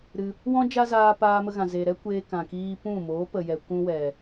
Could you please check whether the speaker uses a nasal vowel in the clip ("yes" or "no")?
yes